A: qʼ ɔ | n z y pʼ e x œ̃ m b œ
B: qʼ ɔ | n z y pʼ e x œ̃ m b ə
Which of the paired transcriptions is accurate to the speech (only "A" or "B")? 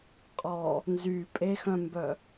A